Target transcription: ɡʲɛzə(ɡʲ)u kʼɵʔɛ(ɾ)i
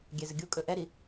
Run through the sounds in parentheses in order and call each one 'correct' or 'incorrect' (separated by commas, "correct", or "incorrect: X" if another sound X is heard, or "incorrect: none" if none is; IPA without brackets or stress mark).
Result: correct, correct